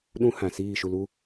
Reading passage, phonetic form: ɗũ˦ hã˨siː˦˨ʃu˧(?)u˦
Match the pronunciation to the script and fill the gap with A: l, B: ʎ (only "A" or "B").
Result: A